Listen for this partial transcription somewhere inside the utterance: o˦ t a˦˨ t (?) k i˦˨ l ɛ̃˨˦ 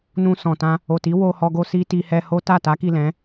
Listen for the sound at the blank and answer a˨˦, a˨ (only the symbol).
a˨˦